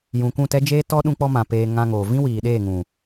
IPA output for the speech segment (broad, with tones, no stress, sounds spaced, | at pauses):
j ũ˨ k ũ˦˨ t ɛ˦ d͡ʒ eː˦ t ɔ˦ ɗ ũ˦ k͡p ɔ˦ m ã˨ p eː˧ ŋ ã˧ ŋ oː˨ v ĩ˦ w iː˨ ɗ eː˦˨ ŋ ũ˨